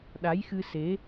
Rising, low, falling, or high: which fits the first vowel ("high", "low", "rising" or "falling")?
rising